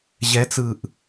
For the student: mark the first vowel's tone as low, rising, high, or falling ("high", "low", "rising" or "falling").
rising